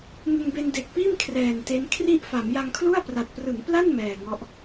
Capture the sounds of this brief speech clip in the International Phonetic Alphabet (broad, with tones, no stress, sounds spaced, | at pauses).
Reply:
ŋ ɯ˧ ŋ b e˧ n d e˨˩ k̚ p iː˥˩ m kʰ r ɛː˨˩ n t e˦˥ n kʰ r i˥˩ ʔ f a˩˦ m j a˧ ŋ kʰ l u˥˩ a̯ p r a˨˩ t̚ p r ɯ˩˦ ŋ p l a˥˩ n m ɛː˨˩ ŋ ɔ˦˥ ʔ